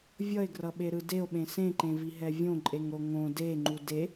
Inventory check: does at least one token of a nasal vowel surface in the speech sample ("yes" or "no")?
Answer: yes